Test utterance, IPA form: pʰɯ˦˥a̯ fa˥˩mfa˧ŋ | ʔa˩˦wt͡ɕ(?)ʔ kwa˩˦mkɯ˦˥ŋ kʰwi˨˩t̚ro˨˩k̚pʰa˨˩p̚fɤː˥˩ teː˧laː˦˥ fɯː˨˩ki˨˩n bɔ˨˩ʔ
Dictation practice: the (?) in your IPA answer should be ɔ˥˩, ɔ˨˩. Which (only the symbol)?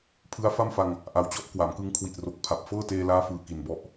ɔ˥˩